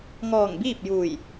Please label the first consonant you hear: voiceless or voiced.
voiced